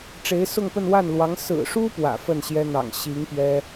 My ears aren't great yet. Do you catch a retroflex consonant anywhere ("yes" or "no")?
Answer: yes